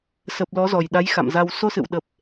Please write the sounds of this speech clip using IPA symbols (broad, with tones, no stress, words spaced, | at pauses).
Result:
sə˨˩p̚ lɔ˨˦zɔ˨˩jɗa˨˦j xa̰˧˨mza˧w so˧sɨ̰˧˨wɗə˨˩p̚